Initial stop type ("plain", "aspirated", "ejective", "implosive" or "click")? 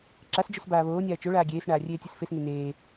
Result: click